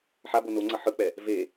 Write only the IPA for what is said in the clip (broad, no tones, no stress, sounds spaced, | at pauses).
ħ a b o n o ŋ͡ǀ ʌ ħ ɯ k͡p ɛ | v e